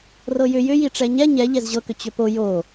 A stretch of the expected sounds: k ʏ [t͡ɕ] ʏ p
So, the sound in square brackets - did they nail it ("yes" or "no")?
yes